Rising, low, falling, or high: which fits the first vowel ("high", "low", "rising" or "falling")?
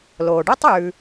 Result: low